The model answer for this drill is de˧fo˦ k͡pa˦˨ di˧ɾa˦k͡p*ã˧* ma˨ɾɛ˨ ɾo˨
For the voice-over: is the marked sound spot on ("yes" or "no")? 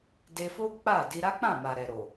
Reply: no